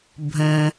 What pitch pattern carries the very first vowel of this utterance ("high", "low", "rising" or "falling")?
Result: low